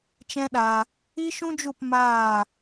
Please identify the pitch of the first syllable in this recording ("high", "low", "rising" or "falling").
high